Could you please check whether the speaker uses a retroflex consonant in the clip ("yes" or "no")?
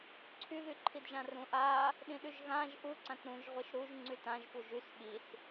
no